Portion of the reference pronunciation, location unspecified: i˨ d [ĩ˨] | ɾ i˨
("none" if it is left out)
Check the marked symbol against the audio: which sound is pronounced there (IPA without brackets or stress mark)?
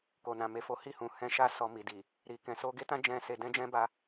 i˨